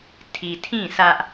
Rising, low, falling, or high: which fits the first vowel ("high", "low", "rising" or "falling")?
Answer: low